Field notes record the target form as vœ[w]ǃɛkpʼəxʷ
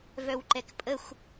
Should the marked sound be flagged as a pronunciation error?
no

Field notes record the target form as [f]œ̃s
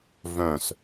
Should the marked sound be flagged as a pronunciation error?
yes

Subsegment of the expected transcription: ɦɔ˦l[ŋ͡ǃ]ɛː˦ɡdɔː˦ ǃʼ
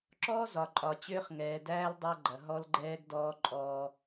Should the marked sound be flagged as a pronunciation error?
yes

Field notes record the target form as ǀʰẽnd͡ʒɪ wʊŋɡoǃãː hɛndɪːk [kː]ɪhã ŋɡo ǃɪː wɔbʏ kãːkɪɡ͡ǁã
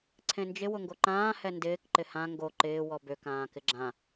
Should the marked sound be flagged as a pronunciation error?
yes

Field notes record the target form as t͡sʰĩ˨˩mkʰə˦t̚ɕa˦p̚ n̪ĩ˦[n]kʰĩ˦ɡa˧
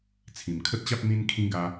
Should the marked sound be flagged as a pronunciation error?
no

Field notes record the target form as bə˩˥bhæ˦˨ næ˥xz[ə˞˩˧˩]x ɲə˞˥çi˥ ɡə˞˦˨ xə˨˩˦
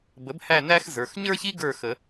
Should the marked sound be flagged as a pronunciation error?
no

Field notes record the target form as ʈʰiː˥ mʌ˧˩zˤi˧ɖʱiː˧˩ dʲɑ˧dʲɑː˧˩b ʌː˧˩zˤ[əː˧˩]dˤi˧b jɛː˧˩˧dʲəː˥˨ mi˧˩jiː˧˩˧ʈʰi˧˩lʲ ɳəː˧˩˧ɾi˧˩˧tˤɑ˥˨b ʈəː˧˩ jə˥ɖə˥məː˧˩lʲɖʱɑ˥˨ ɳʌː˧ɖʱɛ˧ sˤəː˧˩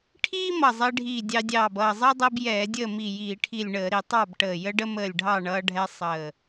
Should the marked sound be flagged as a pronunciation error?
yes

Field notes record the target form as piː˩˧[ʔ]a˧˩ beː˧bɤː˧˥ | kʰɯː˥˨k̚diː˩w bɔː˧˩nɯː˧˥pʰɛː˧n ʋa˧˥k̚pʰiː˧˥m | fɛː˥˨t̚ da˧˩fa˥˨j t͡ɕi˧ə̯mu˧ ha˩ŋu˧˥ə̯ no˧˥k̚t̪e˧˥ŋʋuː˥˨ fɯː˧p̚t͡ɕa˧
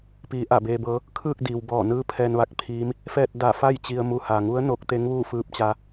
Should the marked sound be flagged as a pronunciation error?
no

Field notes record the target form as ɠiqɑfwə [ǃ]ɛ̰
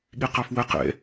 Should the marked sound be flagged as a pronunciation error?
yes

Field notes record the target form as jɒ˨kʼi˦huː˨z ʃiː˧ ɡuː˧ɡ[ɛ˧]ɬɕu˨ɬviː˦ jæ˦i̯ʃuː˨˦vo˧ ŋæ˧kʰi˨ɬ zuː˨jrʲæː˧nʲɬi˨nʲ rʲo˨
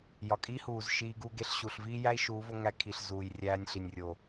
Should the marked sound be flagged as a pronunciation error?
yes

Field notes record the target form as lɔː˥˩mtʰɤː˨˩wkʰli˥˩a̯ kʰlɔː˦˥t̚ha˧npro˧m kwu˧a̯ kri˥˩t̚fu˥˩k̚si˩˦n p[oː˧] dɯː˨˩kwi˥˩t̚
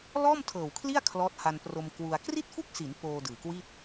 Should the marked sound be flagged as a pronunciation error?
no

